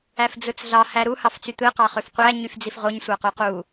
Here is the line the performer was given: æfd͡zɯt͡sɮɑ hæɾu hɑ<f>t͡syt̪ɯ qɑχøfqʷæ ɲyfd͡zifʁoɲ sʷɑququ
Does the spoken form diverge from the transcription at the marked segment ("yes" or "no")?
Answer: no